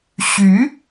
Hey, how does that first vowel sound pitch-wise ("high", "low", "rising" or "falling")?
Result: rising